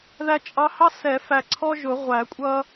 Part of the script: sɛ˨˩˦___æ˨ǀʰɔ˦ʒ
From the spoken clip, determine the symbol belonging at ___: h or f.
f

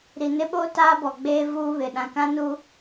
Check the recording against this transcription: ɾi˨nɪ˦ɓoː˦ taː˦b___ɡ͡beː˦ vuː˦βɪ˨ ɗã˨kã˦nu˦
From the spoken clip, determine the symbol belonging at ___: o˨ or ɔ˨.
ɔ˨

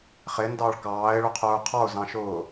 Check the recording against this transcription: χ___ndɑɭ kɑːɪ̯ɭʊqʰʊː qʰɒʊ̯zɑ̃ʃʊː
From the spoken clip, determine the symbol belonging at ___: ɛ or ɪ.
ɪ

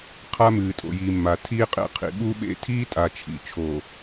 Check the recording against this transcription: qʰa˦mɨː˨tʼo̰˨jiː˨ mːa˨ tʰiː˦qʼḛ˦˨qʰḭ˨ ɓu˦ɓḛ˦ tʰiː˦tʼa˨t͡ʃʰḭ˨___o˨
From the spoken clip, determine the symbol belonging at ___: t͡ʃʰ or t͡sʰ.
t͡ʃʰ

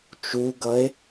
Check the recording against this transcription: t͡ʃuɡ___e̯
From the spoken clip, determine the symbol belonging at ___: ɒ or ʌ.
ʌ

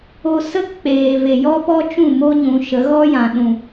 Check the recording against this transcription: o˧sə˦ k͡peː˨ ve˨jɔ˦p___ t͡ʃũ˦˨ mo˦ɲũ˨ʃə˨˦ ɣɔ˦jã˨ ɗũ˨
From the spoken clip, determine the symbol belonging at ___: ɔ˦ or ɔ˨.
ɔ˦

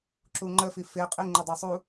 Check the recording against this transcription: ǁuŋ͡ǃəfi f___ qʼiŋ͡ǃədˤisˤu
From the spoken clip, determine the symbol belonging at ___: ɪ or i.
ɪ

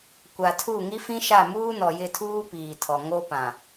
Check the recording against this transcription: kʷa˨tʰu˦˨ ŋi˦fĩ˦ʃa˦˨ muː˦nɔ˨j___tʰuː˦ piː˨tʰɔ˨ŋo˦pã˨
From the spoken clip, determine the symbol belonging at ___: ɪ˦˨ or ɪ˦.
ɪ˦˨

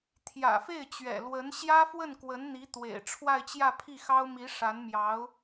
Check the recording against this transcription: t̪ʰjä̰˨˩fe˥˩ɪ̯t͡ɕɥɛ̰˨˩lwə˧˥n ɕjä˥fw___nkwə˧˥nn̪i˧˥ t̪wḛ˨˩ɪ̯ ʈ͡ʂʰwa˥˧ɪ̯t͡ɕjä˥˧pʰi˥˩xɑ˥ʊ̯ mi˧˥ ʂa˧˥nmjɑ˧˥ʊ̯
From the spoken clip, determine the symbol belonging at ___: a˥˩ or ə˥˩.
ə˥˩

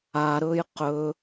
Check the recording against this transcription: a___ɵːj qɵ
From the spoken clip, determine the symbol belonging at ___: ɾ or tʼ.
ɾ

